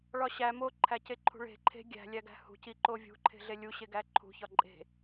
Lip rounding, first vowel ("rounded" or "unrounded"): rounded